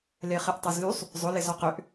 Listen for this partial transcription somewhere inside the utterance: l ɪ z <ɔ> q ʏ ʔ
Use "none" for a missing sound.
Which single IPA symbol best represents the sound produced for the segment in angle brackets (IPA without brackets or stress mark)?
ɔ